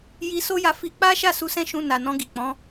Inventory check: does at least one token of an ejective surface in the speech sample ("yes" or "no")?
no